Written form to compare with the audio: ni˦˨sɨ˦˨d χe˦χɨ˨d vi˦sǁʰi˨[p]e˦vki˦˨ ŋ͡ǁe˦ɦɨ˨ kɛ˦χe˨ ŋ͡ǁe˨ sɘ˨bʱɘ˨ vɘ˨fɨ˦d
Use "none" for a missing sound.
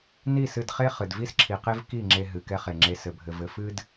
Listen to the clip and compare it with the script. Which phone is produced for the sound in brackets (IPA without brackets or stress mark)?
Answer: q